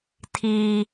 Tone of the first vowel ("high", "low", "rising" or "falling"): high